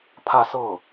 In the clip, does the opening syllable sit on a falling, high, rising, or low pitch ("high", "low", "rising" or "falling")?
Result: falling